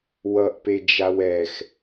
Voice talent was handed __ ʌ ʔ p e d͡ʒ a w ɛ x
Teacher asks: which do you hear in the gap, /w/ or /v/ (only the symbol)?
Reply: w